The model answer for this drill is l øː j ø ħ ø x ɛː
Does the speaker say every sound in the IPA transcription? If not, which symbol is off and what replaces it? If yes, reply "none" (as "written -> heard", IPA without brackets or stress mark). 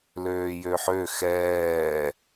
none